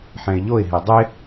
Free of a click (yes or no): yes